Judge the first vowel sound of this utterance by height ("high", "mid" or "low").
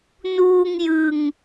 high